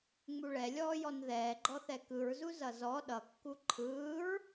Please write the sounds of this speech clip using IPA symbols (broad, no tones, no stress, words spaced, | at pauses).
ŋ͡muɭɛ lʲɔːjɔnðɛː ɡ͡ǃɔθɛkɯɹzu zʌzɔ ɗʌkːu ǃʰɯːɹ